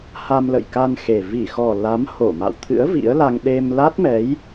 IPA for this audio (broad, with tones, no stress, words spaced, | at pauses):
ha˧mlə̰˧˨jka˧n xe˨˩ vi˧˩xɔ˨˩ la˨˦mho˧˩ma̰˧˨wt̪ʰɨ̰˧˥ə̯ vḭ˧˥ə̯la˧ŋ ɗe˧m la˦˥t̚mɛ˨˦j